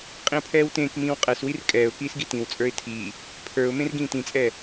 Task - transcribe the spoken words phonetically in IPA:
qʼĩʊ̯pʰɛːwtẽːkmĩːw qʼɛswir kʼɛːʊ̯kiːs ɡitĩwt͡sʼə˞ɪ̯ tʰiː | pʰə˞ʊ̯ mẽrɡĩːtĩt͡sʼɛː

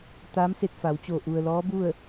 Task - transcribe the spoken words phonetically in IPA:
t̪aː˧˥mse˧t̚fa˩˧wt͡ɕo˧˩ ʔu˩ə̯ lɔː˧˥bu˥˨ə̯

